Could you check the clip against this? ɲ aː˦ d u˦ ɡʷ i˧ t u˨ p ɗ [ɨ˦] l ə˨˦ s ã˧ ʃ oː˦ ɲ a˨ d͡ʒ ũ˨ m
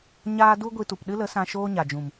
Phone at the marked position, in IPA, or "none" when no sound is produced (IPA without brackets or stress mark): ɨ˦